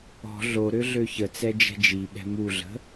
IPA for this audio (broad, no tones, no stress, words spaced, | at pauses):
ɔ̤ ɮo ɾøɮøçət͡sɛ d͡ʒɛ̤d͡ʒiɓɛ̤ muɮə̤